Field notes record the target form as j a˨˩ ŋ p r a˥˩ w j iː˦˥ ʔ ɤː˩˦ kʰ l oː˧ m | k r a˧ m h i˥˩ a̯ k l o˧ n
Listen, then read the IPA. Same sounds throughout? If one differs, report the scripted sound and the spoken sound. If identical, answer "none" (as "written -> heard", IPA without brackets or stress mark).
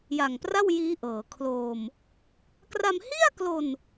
none